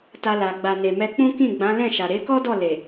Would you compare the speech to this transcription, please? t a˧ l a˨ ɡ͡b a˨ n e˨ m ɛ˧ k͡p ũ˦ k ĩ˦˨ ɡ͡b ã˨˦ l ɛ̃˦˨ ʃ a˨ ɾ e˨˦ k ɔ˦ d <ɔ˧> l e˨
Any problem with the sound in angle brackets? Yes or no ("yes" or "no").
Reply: yes